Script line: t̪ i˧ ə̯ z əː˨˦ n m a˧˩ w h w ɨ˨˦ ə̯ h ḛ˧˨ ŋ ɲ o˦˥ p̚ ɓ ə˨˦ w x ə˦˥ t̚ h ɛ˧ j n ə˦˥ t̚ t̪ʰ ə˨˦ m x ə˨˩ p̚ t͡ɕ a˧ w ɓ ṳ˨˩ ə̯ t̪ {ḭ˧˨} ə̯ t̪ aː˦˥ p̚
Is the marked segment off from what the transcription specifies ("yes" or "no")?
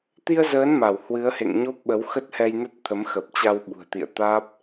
no